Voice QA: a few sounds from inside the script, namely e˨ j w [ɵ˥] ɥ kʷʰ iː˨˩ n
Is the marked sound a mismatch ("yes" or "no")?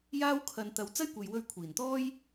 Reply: yes